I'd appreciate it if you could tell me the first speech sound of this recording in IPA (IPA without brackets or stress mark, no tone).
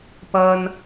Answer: p